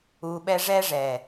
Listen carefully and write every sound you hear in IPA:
uː˧ɓɛ˦ ʐɛː˦ʐɛː˨

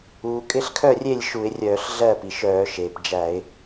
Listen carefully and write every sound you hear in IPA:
uː˩kʼɪ˥˩ɬkʰœ˥˩rʲe˥˩lʲ ʃu˧˩˧ɪ̯rʲœː˧˩˧ɬɮɜ˥˩ pi˩ʃœː˧˩˧ʃeː˩p d͡ʒæ˧˩˧ɪ̯

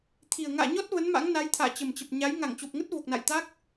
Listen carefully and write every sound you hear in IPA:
t̪ʰi˨˩ə̯ ŋa̰ː˧˨ɲɔ˦˥t̚ və˨˦nma̰˧˥ŋna˨˦jt̪ʰa̰ː˧˨ t͡ɕə˨˩mt͡ɕə˨˩p̚ ɲa˨˦j ŋa˧˩ŋt͡ɕo˨˩p̚ŋə˦˥t̚ vo˨˩k̚na̰˧˨j t̪a˦˥k̚

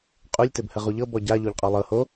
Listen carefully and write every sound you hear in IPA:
qʼulʲ tɘbhəʁuʎɤ bɔɟa ʎoʎqʼɔlˠɤ ho

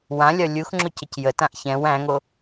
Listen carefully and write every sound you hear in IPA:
wãlʲɒ lʲuxŋ͡ǁocəc jətãʔ çɛ̃w æ̃ŋo

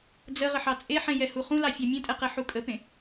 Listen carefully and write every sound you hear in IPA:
d͡zə ʁəħɑt͡sʼeħẽ jɛhuχũlɑ fʲɑmʲẽtʼɛ qɛħukʼəpẽ

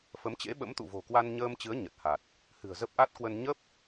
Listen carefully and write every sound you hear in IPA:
fə˨˦mt͡ɕḛ˧˥ɓə̰˧˥m t̪ṵ˧˨vo̤˨˩ kwa˧nɲəː˧mt͡ɕɨ˨˦ə̯ ɲə˨˩t̚ha˨˩t̚ | hɨ̤˨˩ə̯zə˦˥p̚ʔa˦˥t̚kwə˧n ɲə˦˥p̚

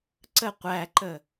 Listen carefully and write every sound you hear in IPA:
ǀə qʷæǃə

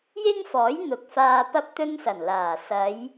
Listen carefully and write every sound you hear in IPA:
jɪ˥ŋfɔː˨˥j n̪ʊ˨k̚faː˧pɐ˥p̚ t̪ɵ˥nsɐ˨˩nlaː˨˩ sɐ˨˧j

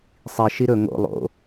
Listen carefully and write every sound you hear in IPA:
sˤi ʃiɾɵ ŋo̰ lˠo̰

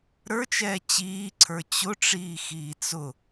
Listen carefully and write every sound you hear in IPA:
ɾə˞t͡ʃɛː t͡ɕiːǀʰə˞ t͡ɕʊʈ͡ʂiːxiː t͡sʊ

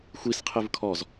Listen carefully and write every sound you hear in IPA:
xʷisqʰɨv kʰɔz

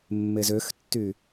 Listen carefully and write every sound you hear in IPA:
mːezøxtːy

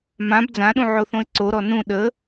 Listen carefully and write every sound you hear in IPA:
mãb d͡zãɗũʕoθõɪ̯ ǀoɾɔ nũ ɗə

